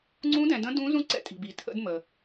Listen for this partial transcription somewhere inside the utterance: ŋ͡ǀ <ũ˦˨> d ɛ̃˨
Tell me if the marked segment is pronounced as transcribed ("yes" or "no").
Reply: no